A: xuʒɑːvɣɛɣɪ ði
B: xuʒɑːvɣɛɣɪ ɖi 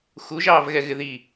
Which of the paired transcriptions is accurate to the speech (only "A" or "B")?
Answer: A